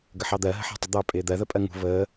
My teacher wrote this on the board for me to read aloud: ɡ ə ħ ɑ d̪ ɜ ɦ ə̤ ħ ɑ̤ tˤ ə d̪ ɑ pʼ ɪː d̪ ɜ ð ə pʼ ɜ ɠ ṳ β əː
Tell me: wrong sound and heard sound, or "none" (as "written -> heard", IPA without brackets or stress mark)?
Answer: ɠ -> ŋ